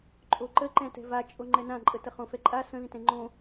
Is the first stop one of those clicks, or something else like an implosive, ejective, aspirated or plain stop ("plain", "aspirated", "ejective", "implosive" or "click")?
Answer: click